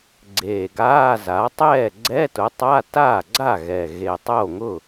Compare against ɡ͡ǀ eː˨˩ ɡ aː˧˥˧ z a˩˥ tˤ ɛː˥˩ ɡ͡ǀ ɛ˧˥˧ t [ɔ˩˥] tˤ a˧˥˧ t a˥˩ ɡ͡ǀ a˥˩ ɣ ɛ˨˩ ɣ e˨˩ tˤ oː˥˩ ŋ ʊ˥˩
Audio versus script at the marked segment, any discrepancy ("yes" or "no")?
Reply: yes